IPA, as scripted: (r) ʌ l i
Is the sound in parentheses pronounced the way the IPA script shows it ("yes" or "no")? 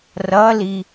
yes